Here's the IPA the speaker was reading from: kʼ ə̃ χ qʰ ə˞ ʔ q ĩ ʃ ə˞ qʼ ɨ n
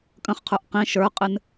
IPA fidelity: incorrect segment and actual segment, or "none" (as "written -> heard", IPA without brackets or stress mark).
none